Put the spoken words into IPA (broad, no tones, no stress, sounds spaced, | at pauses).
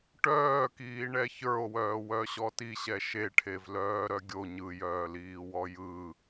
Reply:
ʈ œː k iː ɳ ɛ ç ə˞ o̯ w œː w œ ɕ ɔ t i ɕ ɛ ʃ e ʈʰ e v l œː ɾ œ ɡʲ o ɲ ɯ j œː l iː w ɔ j ɯ